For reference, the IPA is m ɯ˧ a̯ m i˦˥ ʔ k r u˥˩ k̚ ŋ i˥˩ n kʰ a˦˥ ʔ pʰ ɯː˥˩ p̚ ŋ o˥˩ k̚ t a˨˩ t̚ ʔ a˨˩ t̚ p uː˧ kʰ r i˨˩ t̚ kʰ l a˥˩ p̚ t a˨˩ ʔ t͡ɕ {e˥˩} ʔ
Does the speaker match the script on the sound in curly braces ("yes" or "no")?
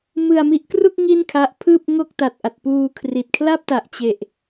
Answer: no